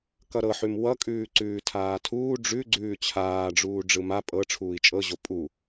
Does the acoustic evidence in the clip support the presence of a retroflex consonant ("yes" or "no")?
yes